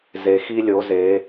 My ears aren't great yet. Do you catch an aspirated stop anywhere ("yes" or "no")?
no